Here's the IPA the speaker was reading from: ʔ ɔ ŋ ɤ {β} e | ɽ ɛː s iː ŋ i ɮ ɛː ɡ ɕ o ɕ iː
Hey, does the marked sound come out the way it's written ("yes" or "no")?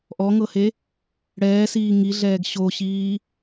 no